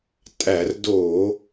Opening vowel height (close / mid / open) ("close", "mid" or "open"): open